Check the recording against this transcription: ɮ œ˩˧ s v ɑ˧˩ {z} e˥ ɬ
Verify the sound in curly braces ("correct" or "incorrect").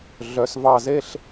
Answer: correct